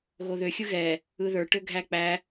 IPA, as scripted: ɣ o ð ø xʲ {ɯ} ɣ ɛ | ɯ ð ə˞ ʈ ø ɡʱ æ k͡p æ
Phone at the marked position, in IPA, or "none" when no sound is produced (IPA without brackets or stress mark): ɯ